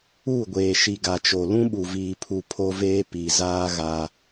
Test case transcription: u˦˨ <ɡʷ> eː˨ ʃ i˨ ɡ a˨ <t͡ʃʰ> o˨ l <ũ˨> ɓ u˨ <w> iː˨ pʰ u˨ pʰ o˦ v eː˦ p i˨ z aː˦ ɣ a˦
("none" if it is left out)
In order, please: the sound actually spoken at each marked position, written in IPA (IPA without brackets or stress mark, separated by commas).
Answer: ɡʷ, t͡ʃ, ũ˦, v